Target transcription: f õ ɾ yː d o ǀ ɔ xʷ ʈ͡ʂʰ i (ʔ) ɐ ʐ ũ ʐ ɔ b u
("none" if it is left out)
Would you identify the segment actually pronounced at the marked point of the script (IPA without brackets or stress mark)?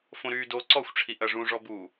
ʔ